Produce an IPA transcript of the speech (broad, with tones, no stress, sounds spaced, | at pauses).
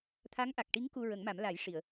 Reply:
t̪ʰ a˧˥ ŋ ʔ a˨˩ k̚ ʈ i˧˥ ŋ k u˧ ɹ ə˨˩˦ ŋ m a˨˩˦ m l a˨˩˦ j ʂ i˨˩˨ ə̯